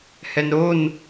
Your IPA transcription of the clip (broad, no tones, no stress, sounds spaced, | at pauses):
h ɛ n ɾ o n